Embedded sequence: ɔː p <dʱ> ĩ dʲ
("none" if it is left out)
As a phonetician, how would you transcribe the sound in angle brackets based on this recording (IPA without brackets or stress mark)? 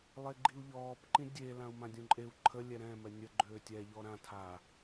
ǃ